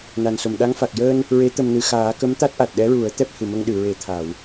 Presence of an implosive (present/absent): present